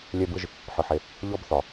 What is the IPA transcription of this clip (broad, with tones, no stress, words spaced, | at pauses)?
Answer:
lʲɛ˥bɯ˥ʒ | ħɯ˨ħe˨ | ʎɔ˥bθɒ˩